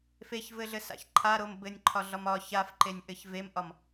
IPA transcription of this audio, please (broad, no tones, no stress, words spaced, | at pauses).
feçvɘɮɘsa̰ç ǃʰaɾom bɘnʲǃʰɒɮɒm ɒ çafǃenʲʔɘç vemʔɒm